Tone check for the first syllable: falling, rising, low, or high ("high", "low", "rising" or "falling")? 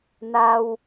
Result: high